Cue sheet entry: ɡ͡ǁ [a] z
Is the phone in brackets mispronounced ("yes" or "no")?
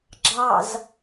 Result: yes